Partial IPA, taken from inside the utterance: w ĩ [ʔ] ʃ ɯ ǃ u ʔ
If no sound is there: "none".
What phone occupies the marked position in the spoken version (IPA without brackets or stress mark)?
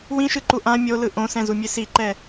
none